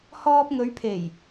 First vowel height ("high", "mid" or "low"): mid